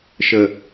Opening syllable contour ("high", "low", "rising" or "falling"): low